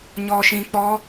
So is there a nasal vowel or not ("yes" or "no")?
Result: yes